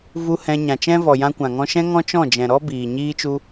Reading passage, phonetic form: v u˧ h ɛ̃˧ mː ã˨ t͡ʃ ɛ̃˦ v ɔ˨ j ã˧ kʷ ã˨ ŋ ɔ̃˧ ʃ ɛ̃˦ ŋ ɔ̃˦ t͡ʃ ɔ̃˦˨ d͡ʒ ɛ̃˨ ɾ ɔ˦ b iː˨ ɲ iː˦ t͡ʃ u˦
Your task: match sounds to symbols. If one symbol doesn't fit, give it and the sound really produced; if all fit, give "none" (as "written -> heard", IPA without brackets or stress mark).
mː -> ɲ